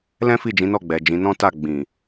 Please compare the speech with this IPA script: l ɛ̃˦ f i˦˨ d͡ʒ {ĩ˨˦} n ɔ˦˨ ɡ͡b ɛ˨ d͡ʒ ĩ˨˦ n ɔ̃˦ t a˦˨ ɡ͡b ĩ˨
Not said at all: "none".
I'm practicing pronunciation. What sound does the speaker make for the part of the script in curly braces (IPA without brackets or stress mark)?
ĩ˨˦